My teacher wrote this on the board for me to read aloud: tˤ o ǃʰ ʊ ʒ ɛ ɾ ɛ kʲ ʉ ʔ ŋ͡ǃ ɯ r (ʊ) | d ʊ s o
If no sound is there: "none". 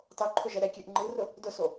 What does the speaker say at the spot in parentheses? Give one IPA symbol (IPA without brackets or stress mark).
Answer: ʊ